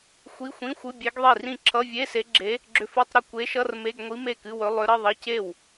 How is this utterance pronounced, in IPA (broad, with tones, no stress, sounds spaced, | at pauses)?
xʷ i˧˥˧ xʷ ĩ˧˥˧ xʷ ɨ˧˥˧ bʲ e˧˥ ɡ ðˤ i˥˩ r ĩ˥˩ ǁʰ ʌ˧˥˧ vʲ e˧˥˧ s e˧˥ ɡ͡ǁ e˧˥ | ɡ͡ǁ ʏ˧˥ f ɨ˧˥˧ tˤ ɾ ʏ˥˩ kʷ e˧˥ ʃ ʌ˧˥˧ r m e˧˥˧ ɡ ŋʷ i˧˥ m e˥˩ k ɨ˧˥˧ w ɵ˧˥ lˠ ʏ˧˥ ɾ ə˧˥˧ ðˤ ʌ˧˥˧ c e˥˩ w